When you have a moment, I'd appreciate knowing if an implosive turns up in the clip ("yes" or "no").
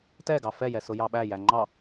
yes